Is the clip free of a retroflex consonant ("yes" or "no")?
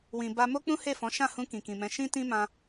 yes